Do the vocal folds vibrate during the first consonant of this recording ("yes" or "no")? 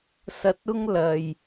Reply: no